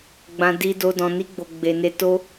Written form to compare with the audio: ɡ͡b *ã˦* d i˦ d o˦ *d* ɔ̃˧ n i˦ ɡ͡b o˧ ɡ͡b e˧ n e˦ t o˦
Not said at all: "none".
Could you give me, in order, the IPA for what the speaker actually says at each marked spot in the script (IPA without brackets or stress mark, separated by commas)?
ã˦, d